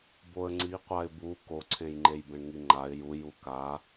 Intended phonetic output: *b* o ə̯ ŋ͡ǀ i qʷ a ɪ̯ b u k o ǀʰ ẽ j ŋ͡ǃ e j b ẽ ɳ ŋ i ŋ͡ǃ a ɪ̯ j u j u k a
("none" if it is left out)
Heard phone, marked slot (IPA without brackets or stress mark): b